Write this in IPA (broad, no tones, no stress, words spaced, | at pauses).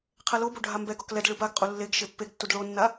qʰɛlobo ɖʱambɛɡɔk lɛd ɭɯbaɡqʼu lːeɡ ʃepːeɡtːud ɭonːa